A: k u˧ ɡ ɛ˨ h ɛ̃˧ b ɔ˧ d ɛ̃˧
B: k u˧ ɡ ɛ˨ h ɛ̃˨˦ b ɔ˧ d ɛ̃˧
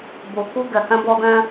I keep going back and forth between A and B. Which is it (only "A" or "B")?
A